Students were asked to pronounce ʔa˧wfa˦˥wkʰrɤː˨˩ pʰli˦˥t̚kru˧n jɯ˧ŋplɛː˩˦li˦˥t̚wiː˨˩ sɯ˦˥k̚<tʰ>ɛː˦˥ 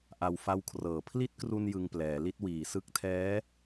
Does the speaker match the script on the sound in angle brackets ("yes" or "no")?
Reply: yes